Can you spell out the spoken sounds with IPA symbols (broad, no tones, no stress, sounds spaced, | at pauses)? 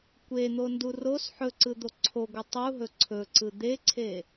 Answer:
kʷ e n̪ o n d u r o s ħ ɵ ǀ ɯ d̪ o ǀʰ o ɡʷ ɯ tˤ u ɦ ɵ ǀʰ ɵ ǀ ɯ d̪ e ǀʰ e